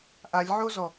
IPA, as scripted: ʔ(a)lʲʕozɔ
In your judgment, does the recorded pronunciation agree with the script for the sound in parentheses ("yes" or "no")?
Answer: yes